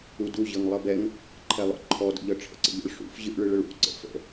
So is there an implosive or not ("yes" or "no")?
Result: no